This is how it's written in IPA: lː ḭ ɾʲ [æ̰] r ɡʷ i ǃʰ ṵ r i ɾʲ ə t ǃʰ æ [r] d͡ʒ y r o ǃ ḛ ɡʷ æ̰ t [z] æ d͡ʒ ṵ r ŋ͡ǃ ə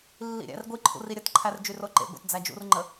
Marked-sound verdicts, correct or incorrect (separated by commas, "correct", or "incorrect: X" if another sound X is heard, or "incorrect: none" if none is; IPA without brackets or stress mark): correct, correct, incorrect: d͡z